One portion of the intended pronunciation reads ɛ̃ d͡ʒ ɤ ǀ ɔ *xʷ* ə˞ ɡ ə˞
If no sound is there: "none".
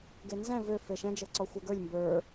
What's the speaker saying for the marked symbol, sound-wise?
xʷ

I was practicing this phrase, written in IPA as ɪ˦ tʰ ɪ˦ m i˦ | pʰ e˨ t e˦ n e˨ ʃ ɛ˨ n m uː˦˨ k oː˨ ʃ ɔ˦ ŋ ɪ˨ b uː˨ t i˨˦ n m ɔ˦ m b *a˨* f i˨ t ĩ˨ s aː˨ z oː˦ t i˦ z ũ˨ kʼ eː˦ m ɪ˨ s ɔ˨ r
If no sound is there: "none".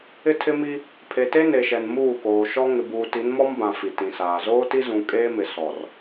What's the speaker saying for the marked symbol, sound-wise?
ã˨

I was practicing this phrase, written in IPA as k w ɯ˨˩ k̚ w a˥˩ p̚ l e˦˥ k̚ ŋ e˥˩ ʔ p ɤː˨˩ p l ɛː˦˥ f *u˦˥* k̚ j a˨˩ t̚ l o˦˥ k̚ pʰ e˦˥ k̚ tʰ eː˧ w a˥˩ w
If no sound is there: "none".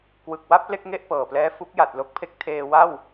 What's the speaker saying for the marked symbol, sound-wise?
u˦˥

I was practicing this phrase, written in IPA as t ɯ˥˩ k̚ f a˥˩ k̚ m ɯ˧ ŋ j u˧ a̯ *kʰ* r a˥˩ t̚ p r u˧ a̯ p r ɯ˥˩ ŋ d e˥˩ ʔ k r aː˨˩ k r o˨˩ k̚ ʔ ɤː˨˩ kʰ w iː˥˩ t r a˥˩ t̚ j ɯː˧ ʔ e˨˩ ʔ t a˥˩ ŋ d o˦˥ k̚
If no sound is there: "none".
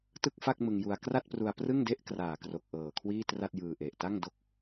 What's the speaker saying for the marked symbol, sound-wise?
k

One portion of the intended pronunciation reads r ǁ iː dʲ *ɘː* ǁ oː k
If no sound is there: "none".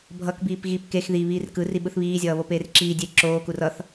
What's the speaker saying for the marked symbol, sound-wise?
eː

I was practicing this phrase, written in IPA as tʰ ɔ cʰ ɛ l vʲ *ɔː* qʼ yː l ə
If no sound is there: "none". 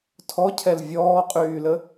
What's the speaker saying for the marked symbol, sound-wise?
ɔː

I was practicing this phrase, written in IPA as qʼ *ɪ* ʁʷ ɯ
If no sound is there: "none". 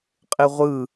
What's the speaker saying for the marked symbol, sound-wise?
ɪ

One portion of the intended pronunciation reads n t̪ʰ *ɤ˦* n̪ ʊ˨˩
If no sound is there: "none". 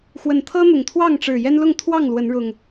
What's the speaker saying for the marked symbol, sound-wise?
ɤ˦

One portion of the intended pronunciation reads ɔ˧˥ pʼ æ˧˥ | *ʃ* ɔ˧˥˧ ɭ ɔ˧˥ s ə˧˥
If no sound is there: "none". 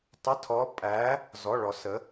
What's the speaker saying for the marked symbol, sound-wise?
z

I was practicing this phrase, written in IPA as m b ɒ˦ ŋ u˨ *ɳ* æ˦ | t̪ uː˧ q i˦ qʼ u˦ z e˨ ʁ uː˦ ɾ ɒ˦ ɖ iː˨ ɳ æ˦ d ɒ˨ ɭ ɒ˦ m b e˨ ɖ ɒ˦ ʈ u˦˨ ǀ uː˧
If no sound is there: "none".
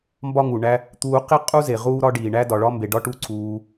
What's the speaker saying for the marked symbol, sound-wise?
ɳ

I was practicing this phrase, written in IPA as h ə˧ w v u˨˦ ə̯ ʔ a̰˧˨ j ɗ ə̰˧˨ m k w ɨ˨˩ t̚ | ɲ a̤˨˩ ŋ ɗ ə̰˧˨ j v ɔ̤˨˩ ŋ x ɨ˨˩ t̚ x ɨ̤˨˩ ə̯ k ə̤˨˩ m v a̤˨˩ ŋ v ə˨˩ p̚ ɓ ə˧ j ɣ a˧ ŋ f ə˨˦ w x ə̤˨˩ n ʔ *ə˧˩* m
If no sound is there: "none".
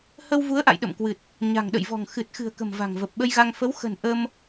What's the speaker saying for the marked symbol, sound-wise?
ə˧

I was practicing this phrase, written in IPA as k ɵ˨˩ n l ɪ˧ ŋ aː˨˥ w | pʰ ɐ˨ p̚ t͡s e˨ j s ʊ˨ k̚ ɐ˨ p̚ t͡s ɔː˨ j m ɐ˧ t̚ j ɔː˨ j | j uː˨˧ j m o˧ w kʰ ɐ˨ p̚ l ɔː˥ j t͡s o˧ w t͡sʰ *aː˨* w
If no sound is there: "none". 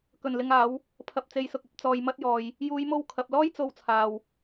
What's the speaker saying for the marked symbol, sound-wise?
aː˨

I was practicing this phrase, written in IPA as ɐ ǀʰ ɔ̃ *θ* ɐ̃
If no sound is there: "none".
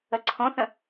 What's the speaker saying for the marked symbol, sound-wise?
θ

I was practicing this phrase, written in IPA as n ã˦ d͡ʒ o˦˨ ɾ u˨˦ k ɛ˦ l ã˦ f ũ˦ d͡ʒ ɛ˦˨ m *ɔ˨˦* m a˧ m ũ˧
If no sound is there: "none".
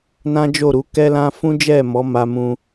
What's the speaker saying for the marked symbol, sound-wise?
ɔ˨˦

